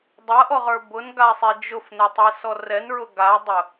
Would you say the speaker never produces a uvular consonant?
no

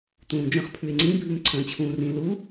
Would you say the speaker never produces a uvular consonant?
no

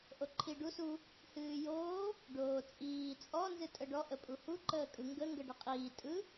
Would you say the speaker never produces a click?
no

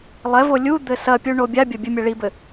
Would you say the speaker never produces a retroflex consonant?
no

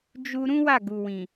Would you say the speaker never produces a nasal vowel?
no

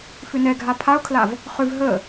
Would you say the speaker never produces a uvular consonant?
no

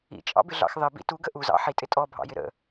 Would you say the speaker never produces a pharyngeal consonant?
no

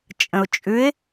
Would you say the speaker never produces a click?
yes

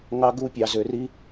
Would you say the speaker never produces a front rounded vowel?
no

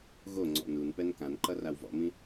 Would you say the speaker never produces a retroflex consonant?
yes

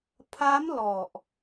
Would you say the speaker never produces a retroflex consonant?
yes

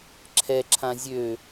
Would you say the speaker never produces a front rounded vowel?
no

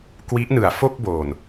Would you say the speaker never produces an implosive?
yes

